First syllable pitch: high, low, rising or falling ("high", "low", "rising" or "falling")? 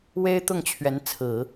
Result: high